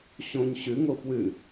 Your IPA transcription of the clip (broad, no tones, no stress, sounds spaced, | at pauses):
ɕ õ ɲ ɕ ʉ ŋ o f w ʉ